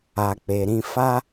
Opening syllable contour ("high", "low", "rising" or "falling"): low